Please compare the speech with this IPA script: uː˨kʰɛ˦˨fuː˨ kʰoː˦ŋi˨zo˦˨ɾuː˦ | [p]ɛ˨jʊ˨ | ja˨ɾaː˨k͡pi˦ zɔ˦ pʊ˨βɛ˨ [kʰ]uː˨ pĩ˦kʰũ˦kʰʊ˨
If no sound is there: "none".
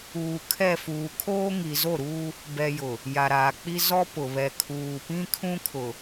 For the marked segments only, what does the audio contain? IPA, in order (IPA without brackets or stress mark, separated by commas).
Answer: b, kʰ